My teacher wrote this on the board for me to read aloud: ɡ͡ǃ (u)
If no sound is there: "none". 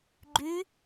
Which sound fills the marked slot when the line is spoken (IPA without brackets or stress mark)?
y